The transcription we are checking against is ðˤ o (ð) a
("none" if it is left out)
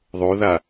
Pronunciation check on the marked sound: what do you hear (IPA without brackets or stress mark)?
ð